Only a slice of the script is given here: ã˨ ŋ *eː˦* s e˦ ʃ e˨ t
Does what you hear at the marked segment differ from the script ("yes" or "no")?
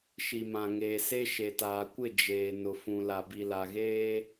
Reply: yes